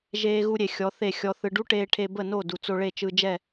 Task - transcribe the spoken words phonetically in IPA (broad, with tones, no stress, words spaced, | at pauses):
ʒeː˦ɣu˦ɾʲe˨ xʲɔ˨˦θe˦˨xʲɔ˧θɯ˧ ɖu˦ʈeː˧ ʈʰe˧bə˦˨no˦˨ du˨t͡so˧ɭe˦˨t͡ʃɯ˧ d͡ʒɛ˦˨